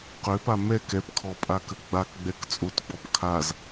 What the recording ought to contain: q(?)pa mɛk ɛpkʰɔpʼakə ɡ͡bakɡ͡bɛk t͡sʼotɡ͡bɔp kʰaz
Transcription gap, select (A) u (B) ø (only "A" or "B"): B